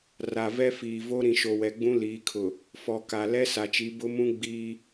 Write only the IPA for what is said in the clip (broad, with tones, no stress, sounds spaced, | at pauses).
r a˨ v ɛ˦ f iː˨ v o˦ ɾ ĩ˨ ʃ o˨ w ɛ˨ ɡ͡b ũ˦ l iː˨˦ kʰ ʊ˨ | f ɔ˨ k a˨ l ɛ˦ s a˨ t͡ʃ i˨˦ b ʊ˦ m ũ˦ ɡ͡b iː˦